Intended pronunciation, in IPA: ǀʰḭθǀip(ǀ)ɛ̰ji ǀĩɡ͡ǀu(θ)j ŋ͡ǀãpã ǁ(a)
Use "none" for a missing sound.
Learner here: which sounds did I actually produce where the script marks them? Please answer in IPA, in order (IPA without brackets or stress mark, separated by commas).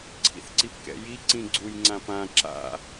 k, none, a̰